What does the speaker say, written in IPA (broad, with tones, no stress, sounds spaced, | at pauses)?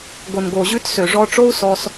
ɡ o˨ n ɡ o˨ ʑ ʉ˧ t s ø˨ ʐ ɔ˧ ʈ͡ʂ o˦ u̯ s ɔ˧ s